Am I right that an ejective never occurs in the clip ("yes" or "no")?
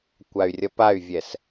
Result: yes